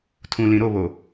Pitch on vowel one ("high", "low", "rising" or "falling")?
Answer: low